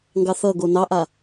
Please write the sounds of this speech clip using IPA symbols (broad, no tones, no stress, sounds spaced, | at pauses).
ŋ ɡ ɑ θ ʌ ɡ o n ɑ ʔ a